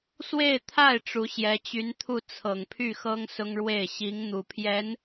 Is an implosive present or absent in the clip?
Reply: absent